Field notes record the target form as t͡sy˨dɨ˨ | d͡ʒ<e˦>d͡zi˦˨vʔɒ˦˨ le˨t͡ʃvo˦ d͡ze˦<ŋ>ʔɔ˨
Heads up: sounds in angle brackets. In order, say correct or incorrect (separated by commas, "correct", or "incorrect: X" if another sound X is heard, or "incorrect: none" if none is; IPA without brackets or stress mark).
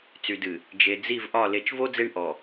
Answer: incorrect: e˨, incorrect: ɳ